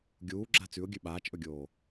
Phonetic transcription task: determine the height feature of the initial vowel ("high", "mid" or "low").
high